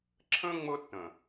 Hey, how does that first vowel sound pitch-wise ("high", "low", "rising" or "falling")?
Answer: high